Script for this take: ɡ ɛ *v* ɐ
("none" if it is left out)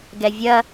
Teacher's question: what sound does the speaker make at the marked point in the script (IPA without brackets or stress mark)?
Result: vʲ